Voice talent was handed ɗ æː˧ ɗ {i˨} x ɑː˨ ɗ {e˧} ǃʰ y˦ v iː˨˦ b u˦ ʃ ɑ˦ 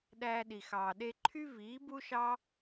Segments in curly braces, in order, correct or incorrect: correct, correct

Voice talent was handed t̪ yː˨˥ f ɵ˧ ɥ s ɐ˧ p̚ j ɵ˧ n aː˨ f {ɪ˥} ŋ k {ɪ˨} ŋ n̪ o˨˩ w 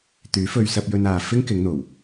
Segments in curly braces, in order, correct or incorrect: correct, incorrect

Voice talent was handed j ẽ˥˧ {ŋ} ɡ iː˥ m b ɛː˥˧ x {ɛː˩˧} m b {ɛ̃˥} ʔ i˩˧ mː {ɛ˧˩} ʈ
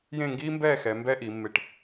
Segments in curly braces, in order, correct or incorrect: correct, incorrect, incorrect, incorrect

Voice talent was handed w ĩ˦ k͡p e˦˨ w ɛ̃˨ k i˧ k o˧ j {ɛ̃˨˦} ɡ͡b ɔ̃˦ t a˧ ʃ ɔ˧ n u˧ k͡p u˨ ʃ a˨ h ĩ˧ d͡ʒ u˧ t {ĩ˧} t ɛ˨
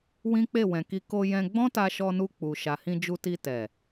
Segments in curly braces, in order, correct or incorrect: incorrect, incorrect

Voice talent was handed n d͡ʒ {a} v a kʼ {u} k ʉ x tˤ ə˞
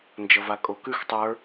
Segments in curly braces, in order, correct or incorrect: incorrect, incorrect

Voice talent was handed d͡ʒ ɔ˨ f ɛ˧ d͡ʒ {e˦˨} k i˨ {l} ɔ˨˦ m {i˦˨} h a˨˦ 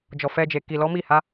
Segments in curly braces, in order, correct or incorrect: incorrect, correct, correct

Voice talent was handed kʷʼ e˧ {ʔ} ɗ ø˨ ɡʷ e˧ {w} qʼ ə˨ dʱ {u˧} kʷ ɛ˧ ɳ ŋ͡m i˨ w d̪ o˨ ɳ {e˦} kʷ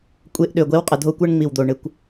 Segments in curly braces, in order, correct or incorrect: correct, correct, incorrect, incorrect

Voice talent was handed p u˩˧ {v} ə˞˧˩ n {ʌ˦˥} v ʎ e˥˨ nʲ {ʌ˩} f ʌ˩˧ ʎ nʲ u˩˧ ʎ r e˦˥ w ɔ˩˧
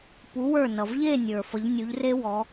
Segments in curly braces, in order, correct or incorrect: incorrect, incorrect, incorrect

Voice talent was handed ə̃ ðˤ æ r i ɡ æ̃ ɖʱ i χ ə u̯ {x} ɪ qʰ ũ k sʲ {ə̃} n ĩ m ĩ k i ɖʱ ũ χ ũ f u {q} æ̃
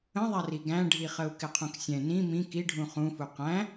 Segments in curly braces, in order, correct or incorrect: incorrect, incorrect, correct

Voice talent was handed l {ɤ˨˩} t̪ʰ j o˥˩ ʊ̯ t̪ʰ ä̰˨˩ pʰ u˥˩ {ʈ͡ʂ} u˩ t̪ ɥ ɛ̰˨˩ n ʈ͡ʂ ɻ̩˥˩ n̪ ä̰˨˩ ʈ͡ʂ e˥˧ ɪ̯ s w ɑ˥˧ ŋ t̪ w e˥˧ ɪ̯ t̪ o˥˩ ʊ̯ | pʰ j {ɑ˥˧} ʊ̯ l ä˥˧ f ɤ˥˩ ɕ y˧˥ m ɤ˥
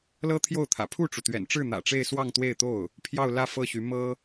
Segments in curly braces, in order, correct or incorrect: incorrect, correct, correct

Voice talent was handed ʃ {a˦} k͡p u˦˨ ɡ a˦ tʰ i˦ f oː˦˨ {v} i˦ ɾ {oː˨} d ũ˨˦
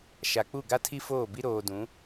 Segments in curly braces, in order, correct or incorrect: incorrect, incorrect, correct

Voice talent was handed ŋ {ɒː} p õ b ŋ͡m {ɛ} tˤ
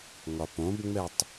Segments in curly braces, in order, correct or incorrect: incorrect, correct

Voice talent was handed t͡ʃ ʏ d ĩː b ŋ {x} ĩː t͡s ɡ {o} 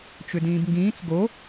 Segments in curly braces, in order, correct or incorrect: incorrect, correct

